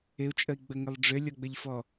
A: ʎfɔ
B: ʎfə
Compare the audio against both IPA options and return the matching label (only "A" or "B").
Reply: A